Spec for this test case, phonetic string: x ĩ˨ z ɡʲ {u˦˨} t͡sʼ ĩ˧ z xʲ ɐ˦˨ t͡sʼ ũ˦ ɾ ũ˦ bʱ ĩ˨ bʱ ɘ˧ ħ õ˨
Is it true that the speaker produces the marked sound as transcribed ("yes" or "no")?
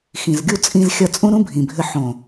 yes